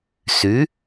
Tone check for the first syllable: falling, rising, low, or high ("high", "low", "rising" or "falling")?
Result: rising